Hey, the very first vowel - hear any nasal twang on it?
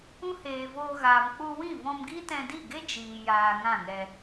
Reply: yes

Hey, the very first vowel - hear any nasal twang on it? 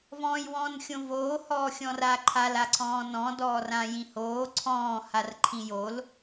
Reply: yes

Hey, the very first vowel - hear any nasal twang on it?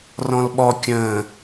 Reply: yes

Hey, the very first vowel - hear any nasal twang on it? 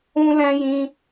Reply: yes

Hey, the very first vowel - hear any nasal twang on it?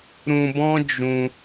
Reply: yes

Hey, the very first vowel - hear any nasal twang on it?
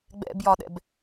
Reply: no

